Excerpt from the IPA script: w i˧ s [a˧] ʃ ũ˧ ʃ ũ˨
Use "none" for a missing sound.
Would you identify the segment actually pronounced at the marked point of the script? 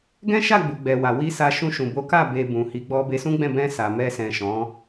a˧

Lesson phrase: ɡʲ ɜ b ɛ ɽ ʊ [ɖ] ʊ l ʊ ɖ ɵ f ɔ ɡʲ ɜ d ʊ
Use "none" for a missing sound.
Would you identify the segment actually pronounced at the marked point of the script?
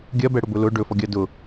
b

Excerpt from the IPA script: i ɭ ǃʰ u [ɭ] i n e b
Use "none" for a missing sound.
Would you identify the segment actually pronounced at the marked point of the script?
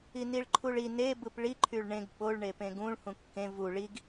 ɭ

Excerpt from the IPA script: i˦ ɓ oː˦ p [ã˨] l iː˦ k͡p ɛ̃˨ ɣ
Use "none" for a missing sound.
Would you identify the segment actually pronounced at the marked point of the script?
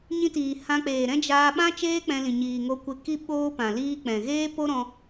ã˨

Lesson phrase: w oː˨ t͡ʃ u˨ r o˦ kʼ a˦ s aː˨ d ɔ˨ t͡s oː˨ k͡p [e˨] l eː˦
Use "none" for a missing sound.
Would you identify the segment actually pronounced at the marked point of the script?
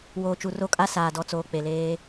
e˨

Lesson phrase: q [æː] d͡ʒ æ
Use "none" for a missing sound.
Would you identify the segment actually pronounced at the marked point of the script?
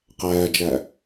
æː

